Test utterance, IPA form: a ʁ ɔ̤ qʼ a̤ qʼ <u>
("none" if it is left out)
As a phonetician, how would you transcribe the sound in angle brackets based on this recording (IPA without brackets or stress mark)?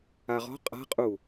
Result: u